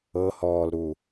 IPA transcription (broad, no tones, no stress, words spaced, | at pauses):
ɤhɔːlɾu